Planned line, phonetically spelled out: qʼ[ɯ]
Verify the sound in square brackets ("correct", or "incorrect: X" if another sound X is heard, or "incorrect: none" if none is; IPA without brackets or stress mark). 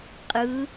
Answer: correct